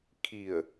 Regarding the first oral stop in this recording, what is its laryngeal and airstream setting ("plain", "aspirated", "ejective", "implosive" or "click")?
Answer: aspirated